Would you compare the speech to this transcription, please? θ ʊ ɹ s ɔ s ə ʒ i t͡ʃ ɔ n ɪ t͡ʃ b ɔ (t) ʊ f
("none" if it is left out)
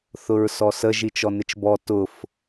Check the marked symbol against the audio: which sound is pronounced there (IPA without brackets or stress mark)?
t